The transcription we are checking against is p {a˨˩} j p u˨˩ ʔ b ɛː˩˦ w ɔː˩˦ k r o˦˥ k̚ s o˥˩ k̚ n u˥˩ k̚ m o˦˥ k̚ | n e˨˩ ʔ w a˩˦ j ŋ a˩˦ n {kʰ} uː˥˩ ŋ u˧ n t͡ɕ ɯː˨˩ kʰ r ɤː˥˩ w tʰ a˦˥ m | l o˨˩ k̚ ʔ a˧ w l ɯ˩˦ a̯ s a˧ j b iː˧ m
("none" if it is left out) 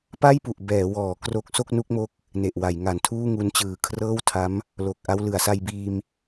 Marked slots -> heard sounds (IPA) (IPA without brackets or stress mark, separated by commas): a˥˩, tʰ